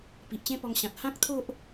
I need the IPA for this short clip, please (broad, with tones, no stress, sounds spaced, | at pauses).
p i˨ ʔ t͡ɕ ẽ˦ p ɔ˧ ŋ ɕ ã˨ t̚ h ã˦ k̚ t̪ʰ o˦ ʔ